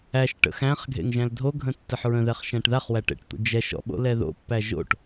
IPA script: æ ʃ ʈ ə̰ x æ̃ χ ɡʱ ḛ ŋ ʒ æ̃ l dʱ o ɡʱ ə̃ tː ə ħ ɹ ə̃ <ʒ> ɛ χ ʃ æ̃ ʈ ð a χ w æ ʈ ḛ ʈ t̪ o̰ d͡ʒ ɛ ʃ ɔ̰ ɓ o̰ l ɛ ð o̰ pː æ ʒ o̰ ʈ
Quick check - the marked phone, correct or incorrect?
incorrect